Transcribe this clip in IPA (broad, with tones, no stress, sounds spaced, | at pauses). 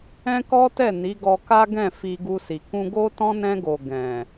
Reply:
ɛ̃˦ k ɔ˦ t ɛ˦˨ n i˨˦ ɡ ɔ˧ k a˦ ɡ ɛ̃˦˨ f i˧ ɡ u˧ s i˨ k ũ˧ ɡ o˦ t ɔ̃˦ n ɛ̃˧ ɡ o˨ ɡ ɛ̃˨